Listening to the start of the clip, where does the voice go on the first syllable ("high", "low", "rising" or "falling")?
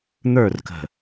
falling